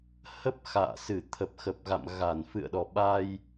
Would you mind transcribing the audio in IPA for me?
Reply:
h ə˦˥ p̚ x a̰ː˧˨ s ɨ˧˩ t̪ʰ ə˨˩ p̚ x ə˨˩ p̚ ɣ a̰˧˨ m ɣ a˧˩ n f ɨ̰˧˨ ə̯ ɗ ɔ˨˩ ɓ a˧ j

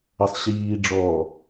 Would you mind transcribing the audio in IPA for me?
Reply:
ɐ sˤ ɕ iː ɖ͡ʐ ɔː

